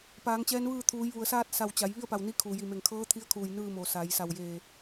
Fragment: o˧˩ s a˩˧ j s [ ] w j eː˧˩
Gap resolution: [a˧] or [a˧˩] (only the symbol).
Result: a˧˩